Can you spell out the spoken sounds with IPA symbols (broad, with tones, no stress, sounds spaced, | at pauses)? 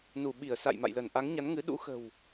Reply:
n u˧˩ ɓ i˧˩ ə̯ s a̰˧˨ j m a̰˧˨ j l ə˧˩ n ʔ a˨˦ ŋ ɲ a˨˦ n ŋ ɨ˨˦ ɗ ṵ˧˥ x ə̤˨˩ w